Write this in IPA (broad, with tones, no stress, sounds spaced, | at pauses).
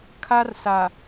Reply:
kʰ a˦ r s a˨